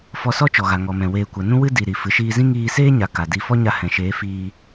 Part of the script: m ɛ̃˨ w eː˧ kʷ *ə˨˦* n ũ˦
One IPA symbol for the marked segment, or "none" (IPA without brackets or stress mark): ə˨˦